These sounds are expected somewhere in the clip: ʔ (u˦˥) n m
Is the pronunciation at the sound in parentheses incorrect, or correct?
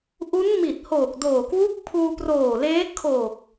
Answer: correct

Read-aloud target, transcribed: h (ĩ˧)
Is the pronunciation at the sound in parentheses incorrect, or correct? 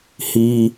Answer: incorrect: i˧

